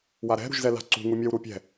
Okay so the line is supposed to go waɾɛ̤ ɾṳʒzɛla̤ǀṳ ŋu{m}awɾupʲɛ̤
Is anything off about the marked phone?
yes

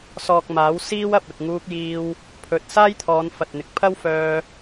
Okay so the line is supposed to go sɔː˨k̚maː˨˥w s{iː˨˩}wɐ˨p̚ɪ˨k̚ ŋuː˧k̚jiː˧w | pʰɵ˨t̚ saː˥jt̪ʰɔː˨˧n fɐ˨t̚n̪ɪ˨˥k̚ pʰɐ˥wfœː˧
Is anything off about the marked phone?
yes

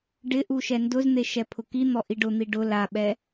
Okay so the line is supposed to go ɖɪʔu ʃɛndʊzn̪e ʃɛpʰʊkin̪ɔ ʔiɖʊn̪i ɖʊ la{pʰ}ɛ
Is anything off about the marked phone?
yes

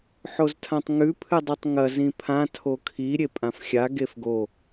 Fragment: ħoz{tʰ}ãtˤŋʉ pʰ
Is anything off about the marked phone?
no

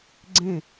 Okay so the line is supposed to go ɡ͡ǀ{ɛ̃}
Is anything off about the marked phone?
yes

